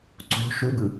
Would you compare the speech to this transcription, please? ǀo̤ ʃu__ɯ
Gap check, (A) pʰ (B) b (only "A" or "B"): B